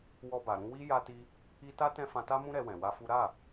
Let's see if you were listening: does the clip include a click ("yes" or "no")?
no